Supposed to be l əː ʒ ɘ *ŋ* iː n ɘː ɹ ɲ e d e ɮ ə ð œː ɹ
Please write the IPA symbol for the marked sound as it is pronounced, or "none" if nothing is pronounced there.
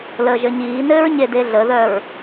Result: ɲ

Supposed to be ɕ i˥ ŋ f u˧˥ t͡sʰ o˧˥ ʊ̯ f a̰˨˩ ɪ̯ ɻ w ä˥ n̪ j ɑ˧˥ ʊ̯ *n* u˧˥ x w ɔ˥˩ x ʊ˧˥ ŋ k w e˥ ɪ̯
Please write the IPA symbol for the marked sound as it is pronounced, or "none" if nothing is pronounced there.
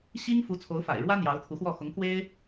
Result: t̪ʰ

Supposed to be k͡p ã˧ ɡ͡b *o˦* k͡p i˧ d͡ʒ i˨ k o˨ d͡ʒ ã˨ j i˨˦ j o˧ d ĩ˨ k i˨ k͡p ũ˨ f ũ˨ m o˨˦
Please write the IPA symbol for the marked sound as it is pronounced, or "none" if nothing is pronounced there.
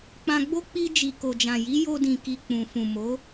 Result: o˦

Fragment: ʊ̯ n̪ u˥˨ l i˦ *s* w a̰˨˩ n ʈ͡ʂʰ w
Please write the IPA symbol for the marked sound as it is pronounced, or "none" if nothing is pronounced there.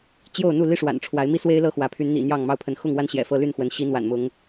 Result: ʂ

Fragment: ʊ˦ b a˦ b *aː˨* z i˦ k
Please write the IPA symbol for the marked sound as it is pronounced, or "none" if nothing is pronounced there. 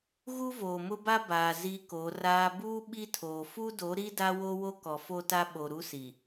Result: aː˨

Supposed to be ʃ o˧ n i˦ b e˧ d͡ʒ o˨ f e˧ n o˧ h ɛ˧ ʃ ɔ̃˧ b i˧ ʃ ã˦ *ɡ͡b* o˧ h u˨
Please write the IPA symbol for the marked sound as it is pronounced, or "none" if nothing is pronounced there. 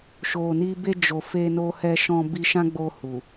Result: ɡ͡b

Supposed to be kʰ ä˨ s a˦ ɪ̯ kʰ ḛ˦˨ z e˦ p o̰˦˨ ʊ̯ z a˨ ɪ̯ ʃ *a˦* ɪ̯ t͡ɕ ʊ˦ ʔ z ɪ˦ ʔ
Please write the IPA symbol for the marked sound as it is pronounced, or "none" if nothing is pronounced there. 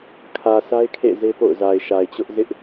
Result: a˨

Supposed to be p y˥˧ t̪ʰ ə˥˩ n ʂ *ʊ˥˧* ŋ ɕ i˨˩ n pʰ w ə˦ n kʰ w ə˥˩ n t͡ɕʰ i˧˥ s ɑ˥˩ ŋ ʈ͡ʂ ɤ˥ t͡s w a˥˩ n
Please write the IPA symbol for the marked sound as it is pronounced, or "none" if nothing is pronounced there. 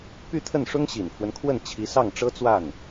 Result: ʊ˥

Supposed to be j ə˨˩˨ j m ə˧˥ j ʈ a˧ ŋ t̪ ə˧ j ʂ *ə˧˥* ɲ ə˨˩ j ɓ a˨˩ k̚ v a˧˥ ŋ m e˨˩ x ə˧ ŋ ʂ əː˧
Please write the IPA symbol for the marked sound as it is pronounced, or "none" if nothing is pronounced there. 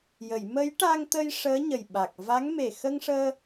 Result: əː˧˥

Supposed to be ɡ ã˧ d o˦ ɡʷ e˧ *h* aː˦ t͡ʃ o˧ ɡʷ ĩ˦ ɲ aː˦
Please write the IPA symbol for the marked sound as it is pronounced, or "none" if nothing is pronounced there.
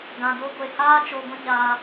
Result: h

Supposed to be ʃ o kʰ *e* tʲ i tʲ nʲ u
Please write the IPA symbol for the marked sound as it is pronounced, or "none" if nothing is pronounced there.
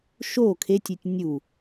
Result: e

